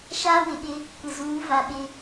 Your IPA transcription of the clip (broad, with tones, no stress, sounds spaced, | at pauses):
ʃ aː˦ w ɪ˨ ɓ ɪ˦ | kʷ ɪ˨ z uː˨˦ v a˨ ɓ ɪ˦